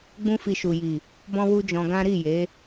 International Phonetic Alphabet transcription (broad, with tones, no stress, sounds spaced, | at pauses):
ɡ͡b ũ˦ f i˧ ʃ u˨ j i˨ | b ɔ̃˦ w u˦ d͡ʒ ɔ̃˧ ɡ ã˦ ɾ i˦˨ j e˨˦